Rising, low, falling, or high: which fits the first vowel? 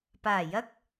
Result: low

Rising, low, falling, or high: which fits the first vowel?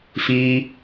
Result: high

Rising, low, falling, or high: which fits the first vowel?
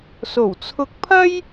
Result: low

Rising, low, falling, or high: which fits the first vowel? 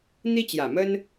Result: high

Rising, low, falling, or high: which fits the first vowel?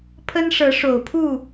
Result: high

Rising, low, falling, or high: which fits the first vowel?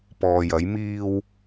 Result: low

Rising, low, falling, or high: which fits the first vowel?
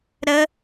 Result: high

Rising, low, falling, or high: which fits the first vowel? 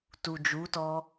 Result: low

